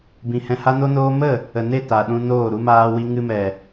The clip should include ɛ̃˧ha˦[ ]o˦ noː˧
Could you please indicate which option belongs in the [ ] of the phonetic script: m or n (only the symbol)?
n